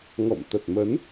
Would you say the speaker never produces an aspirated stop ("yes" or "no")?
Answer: yes